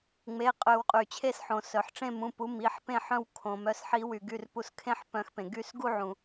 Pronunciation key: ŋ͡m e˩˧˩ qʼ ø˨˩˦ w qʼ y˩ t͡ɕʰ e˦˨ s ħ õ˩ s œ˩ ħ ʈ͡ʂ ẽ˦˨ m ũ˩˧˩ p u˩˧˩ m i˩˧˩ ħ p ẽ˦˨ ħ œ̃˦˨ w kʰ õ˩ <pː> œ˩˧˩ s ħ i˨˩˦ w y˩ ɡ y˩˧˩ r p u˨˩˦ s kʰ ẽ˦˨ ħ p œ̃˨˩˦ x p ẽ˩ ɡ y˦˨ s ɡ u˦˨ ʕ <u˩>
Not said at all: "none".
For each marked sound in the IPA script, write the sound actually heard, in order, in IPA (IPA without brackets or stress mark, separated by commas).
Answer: m, ũ˩